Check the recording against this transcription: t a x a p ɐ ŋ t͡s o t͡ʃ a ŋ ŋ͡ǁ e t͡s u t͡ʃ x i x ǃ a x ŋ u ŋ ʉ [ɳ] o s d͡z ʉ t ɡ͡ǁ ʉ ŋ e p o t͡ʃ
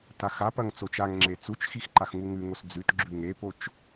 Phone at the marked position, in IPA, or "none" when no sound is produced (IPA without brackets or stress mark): ŋ